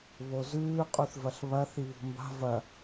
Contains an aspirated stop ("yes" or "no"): no